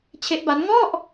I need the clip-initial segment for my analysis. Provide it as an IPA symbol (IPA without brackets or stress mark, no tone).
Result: t͡ɕʰ